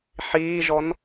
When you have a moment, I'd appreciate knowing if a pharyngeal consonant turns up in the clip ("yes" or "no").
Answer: yes